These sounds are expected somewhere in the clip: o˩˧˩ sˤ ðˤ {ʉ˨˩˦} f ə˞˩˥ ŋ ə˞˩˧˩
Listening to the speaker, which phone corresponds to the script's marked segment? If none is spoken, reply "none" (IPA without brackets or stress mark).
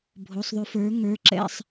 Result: ʉ˨˩˦